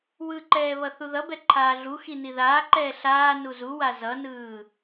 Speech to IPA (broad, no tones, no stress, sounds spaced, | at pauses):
w ɯ ǃ ɛː β ʌ θ u ð ʌ b ɛ ǃʰ aː ɮ u x i n i ð aː ǃ ɛː ɬ aː n u z u w a z ʌ n ɯː